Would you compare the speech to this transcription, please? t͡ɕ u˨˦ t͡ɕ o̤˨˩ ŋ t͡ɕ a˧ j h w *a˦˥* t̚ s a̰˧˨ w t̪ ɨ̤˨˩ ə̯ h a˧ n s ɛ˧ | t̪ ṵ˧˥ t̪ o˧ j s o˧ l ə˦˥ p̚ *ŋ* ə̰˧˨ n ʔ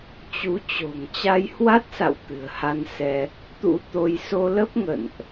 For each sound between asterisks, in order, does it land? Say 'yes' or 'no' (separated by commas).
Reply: yes, yes